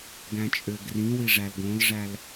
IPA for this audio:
ɡ æ̃ t͡ʃʼ ø ɡ r ĩ w i ʐ æ l ɡ õ l ʐ æ l

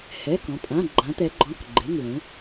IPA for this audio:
h ɛ˩˧˩ k ɔ̃˩˧ pʼ ã˩˧˩ ɡ͡ǃ ã˩˧ t̪ ɛ˩˧ ɡ͡ǃ ɔ̃˩˧˩ k ɡ͡ǃ e˩˧˩ ŋ l ẽ˩˧

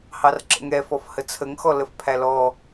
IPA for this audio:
h ɑ r ǁ ə̰ ŋ ɛ f ɔ f h ə t͡sʰ ə ŋ x ɔ l ə f pʰ æ l ɔ

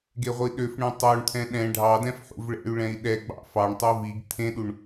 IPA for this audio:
ɡ e ʁʷ i ɗ ø f ɳ ẽ tˤ o ɳ t̪ʰ ɛ̃ ɗ ɛ̃ ɖʱ ɑ d ɛ̃ f ħ ṵ v ɭ ɛ̰ y̯ ɭ ɛ̃ i̯ ɗ ɛ ɡ͡b ɑ̰ f ɑ ɳ tˤ o v i ɡ t̪ʰ ẽ ɗ u ɳ

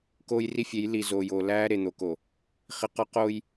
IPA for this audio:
k oː˦ j r i˦ fʲ e˨˦ j l i˨ z oː˨ j oː˨ l æː˦ ɾ e˨ n̪ o˨ k o˨ | χ i˨ q ɒ˦ q oː˦ j

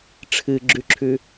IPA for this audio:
ʈ͡ʂʰ ɨ ɡ͡ǁ ʉ ǁʰ ʉ

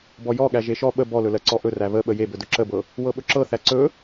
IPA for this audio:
b ɔ j ɔ ɠ æ ʒ e ʃ ɔ ɓ ə b ɔ l ɵ l ɜ ǀ ɔ ʔ ɵ r æ β ə ɓ ə j e b ɵ d ɵ ǁ ə b ɤ | w ɤ ɓ ɵ ǁ ɤ θ æ ǀ ɵ

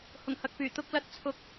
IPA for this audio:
h ʊ˨˩ ŋ h ɐ˨ k̚ p yː˨˩ t̪ ʊ˧ k̚ l ɐ˨˥ t̚ t͡sʰ ʊ˨˥ k̚

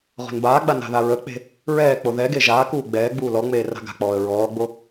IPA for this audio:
ʁ o̤ n b aː ɡ͡b a n a̤ ð a ɹ ə k͡p e̤ | ɹ ɛː k͡p o ð ɛ ɡ e ʒ aː k uː ɡ͡b ɛː ɡ͡b uː l ɔ ŋ͡m eː r a̤ ɡ a̤ k͡p ɔː ə̯ ɹ ɔː ɡ͡b o

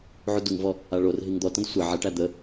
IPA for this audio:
ʕ u d u ŋ v ɔ | a ɭ o r ɦ i ŋ d̪ ɔ t ɐ̃ d sʷ ə ʕ ɐ ʈ æ d̪ ə

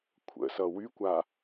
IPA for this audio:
kʷʰ ə̰ s ʌ w y kʷ a

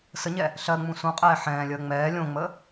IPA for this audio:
s ə ɲ ɛ | ɬ ɜ ŋ͡m ũ s ũ qʼ ɛː ħ ɛ̃ː lʲ əː ŋ͡m ɛː lʲ õ ŋ͡m ə

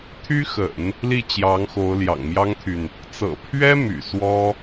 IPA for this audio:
t̪ʰ y˥ x ə̰˨˩˦ n | l i˥˩ t͡ɕ j ɑ˧˥ ŋ x o˧˥ ʊ̯ l j ɑ̰˨˩ ŋ m j ɑ˥ ŋ t̪ʰ y˨ n | t͡s ɤ̰˨˩ pʰ ɥ ɛ˥ m y̰˨˩ s w ɔ˥

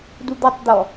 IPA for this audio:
d u d̪ ɔ tˤ d̪ ɔ

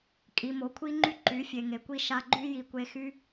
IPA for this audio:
kʼ i˨ m o˨ kʷʰ i˦ ŋ͡ǃ y˦ ǃ y˨˦ fʲ e˨ ŋ e˨ kʷ i˦ ʃ a˧ ɡ͡ǃ y˦ j i˨ kʷ e˧ x y˦

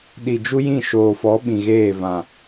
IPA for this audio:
ɗ i˨ d͡ʒ u˦ j ĩ˦˨ ʃ oː˨ f ɔ˨˦ ɓ ĩ˨ ɣ eː˦˨ v ã˨

